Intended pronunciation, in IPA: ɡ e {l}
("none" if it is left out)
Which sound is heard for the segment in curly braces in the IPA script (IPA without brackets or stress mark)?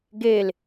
l